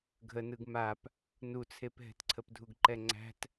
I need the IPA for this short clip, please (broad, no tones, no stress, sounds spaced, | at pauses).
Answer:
ɡʱ ə n ɯ ɡ m a p | n u t͡sʰ e p ɦ ɛ̤ t ǀʰ ə p dʱ u ɡ ǃ ɛ ŋ͡ǀ æ̤ t